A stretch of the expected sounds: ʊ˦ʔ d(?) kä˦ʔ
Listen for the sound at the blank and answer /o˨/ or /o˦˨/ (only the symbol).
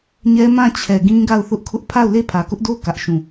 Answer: o˦˨